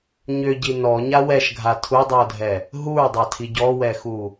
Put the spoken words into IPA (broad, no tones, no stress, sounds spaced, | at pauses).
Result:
ɲ ʏ ɟ i n ɔ ɲ a w ɛ ʃ ɡʱ a tʰ u dˤ i o̯ dʱ ɛ | ɦ u ɹ dˤ ɑ tʰ i ɟ ɔ w ɛ x u